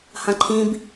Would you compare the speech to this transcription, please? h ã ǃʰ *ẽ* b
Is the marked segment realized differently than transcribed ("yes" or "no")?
yes